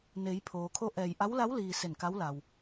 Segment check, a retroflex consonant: absent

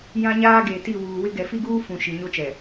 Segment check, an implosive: absent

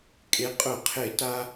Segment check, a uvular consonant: present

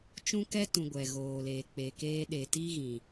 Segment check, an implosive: present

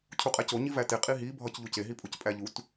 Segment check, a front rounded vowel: absent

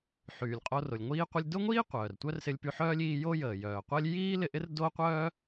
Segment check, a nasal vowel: absent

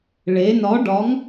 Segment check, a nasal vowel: absent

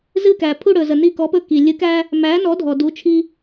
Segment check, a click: absent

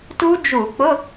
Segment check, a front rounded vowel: absent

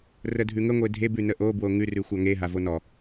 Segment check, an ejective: absent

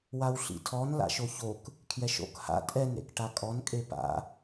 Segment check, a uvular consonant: absent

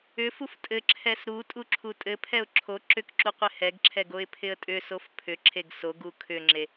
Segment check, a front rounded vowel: present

